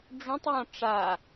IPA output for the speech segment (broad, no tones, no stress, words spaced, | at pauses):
ɖ͡ʐũtˤ jɔ̃ʈ͡ʂa